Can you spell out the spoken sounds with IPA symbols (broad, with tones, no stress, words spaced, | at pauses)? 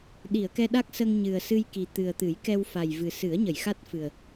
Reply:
ɗi˨˩˨ə̯kɛ˧ɗa˦˥k̚sə˧ŋ ɲɨ˨˩ə̯sɨ˧jki˨˩ t̪ɨ˨˩ə̯t̪ɨ˨˩˦jkɛ˧w fa˨˩j vɨ˨˩sɨ˨˩˦ə̯ ɲə˨˩˨jxa˦˥t̚fɨ˨˩ə̯